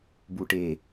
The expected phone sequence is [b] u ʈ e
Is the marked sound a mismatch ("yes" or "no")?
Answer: no